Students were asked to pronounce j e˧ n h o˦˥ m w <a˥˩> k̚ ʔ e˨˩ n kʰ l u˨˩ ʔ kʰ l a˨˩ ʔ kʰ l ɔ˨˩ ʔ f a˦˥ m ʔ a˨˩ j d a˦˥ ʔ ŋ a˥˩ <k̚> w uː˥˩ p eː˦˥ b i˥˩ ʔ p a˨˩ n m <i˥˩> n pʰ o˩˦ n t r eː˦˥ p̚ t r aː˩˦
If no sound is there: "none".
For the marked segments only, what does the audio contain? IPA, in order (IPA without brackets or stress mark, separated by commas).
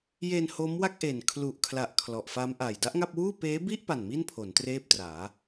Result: a˥˩, p̚, i˥˩